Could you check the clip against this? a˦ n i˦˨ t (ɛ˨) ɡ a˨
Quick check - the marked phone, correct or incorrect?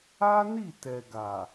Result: correct